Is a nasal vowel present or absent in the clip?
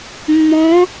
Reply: present